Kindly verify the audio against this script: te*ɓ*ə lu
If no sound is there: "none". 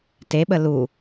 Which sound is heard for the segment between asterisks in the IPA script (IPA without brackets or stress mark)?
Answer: ɓ